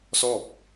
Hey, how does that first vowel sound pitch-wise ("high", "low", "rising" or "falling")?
falling